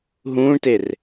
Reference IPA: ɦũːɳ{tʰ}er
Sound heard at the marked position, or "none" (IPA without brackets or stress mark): t